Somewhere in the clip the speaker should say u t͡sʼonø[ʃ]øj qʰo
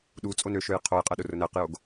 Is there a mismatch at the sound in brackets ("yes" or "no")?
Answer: no